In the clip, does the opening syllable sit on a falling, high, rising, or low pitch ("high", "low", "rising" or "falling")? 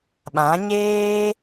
rising